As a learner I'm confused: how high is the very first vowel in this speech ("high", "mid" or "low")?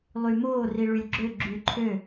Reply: high